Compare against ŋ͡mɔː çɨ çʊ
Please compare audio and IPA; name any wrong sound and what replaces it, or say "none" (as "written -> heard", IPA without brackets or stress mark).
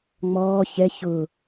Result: ɨ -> ɛ